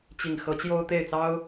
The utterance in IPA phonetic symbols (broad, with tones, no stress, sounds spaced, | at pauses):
t͡ɕ i˨˩ ŋ x ɤ˧˥ t͡ɕ j o˥ ʊ̯ t̪ e˥˩ ɪ̯ t͡s ɑ˥ ʊ̯